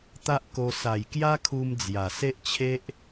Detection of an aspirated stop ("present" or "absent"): present